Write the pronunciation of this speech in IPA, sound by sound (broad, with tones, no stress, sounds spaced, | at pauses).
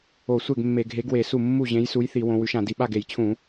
o˧˩˧ sʷ e˥˩ ɡ mː e˧˩˧ ɡʱ e˨˥ ɡ w e˧˩˧ s u˥˩ mː u˥˩ ʑ ẽ˨˥ j s u˨˥ j θ i˧˩˧ w õ˨˥ w ʉ˨˥ ʃ ã˧˩˧ d i˥˩ ɓ a˥˩ ɡ e˧˩˧ j t͡ɕʰ ũ˧˩˧